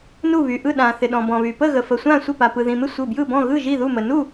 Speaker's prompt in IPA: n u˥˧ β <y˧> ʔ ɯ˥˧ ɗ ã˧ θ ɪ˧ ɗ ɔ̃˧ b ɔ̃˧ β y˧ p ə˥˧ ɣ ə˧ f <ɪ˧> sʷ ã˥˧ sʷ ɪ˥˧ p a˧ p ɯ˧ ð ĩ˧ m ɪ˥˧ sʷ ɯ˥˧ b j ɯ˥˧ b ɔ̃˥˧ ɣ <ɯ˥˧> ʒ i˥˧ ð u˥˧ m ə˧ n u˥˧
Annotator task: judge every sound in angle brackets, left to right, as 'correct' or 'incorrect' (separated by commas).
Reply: correct, incorrect, correct